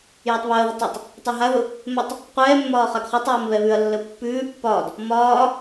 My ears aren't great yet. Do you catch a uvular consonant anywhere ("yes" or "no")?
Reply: yes